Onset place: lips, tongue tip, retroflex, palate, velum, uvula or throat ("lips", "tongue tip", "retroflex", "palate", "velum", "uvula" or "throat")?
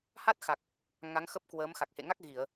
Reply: throat